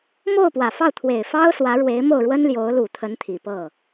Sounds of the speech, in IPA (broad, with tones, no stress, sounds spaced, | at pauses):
m o˥˩ ʊ̯ p w ä˨˩ f ɑ˥˩ ʊ̯ t̪ʰ w e˨˩ ɪ̯ f ɑ˥ ʊ̯ s w ä˧˥ ɻ w e˧˥ ɪ̯ m o˥˩ ʊ̯ ɻ w ə˥ n l j o˧˥ ʊ̯ l u˨˩ t̪ʰ ə˧˥ n t̪ʰ i˨˩ p ɤ˥˩